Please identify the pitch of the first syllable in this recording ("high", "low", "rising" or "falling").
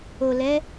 low